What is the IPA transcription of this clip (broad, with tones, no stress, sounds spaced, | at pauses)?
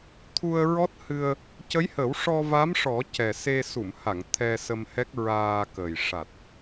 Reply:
t̪ʰ u˧ ə̯ ɹ ɔ˦˥ t̚ h ɨ˧ ə̯ | c ə˧˥ j h ə˨˩˦ w ʂ ɔ˧ v a˧˥ m ʂ ɔ˨˩˦ c ɛ˨˩ s e˧ s u˨˩˨ m h a˨˩˨ ŋ t̪ʰ ɛ˧ s ə˧ m h ɛ˦˥ k̚ ɹ aː˧ k ə˨˩ j ʂ a˨˩ t̚